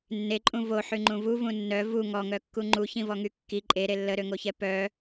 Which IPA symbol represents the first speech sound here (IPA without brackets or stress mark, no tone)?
nː